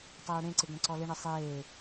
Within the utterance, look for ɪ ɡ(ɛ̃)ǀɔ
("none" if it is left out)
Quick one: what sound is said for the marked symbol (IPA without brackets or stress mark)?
ɛ̃